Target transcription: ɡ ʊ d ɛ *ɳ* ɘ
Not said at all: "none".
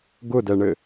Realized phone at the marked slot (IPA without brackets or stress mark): ɳ